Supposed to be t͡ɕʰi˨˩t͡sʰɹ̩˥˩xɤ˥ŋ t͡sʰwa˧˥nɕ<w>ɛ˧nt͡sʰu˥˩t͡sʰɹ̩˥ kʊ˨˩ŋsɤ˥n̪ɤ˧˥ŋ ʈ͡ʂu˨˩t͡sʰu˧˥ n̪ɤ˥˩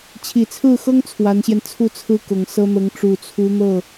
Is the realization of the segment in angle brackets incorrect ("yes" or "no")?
yes